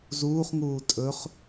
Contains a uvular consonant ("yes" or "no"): yes